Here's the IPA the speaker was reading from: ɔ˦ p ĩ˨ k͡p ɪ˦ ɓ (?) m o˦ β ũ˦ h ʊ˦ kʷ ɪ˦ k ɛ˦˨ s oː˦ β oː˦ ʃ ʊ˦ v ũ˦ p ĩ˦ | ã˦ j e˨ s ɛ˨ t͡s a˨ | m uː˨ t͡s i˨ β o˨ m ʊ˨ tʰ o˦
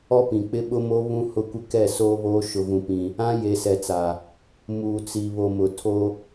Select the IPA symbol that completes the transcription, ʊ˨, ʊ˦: ʊ˦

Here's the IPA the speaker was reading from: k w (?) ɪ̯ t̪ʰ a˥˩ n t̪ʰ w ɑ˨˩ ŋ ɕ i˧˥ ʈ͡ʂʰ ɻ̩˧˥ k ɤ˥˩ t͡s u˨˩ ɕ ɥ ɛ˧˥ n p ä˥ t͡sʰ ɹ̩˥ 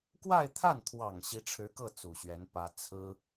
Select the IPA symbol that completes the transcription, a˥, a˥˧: a˥˧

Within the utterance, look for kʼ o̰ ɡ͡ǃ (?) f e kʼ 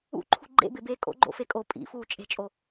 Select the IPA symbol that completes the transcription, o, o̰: o̰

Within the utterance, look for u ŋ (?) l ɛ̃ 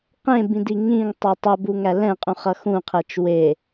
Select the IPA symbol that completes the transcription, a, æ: æ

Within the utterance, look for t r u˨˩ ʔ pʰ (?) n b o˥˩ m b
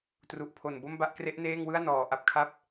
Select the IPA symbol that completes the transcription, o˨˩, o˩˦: o˨˩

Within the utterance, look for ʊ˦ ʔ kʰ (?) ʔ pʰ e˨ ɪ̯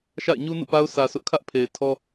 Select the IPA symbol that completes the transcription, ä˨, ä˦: ä˦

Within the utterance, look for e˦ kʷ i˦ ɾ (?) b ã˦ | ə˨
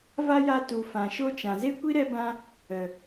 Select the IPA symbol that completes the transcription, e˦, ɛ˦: ɛ˦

